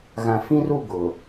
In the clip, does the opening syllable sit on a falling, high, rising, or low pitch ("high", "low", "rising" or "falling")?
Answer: low